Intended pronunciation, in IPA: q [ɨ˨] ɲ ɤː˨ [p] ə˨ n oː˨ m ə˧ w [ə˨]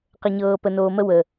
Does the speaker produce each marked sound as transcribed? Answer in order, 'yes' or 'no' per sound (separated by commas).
no, yes, yes